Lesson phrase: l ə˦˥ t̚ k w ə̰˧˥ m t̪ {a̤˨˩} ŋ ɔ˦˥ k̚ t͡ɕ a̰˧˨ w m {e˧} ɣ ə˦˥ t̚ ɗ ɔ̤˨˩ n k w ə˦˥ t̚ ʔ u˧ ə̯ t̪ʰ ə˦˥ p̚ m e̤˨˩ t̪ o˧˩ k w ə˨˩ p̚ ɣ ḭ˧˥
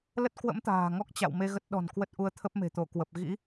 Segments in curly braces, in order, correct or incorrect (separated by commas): incorrect, correct